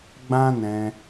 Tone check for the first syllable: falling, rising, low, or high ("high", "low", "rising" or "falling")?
high